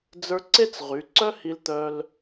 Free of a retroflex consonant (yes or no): yes